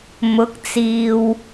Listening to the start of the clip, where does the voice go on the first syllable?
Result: rising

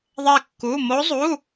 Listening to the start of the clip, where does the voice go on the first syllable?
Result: falling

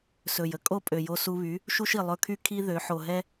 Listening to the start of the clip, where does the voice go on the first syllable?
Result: low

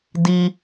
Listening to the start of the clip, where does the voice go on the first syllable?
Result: high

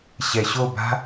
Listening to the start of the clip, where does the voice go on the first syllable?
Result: low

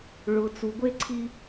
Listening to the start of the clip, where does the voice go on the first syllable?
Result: low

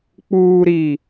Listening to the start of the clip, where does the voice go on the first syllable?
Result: low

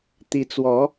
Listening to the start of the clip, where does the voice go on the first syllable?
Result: rising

